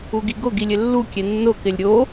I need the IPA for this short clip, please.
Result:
u ɡ i ɡ ʊ ɡ i lʲ ɪ lː u kʲ e nː ʊ k ɪ lʲ ɾʲ o

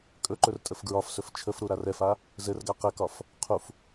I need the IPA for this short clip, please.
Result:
kʼ ɵ ǃ ɵ r tʼ ə f ɡ ɹ ɒ f s ɵ f t͡ʃʰ ə f ɾ u ɾ a r ɛ f a | z ɘ r ɡ a q ɘ k ɒ f | qʰ u f

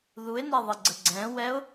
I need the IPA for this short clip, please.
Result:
ð u ɪ̯ n e ðˤ i ɡ͡ǀ ə ɡ͡ǀ ɛ̃ w ɛ ʊ̯

